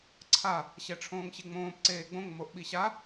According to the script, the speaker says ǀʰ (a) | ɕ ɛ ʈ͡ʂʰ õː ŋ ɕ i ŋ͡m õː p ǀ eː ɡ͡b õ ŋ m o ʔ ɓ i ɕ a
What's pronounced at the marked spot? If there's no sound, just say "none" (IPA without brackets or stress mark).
a